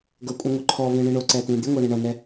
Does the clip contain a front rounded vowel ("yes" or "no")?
yes